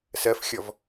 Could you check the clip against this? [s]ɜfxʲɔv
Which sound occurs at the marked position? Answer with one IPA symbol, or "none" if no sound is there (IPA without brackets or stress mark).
s